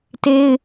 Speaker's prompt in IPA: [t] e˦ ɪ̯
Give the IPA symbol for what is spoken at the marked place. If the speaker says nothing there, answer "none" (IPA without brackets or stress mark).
t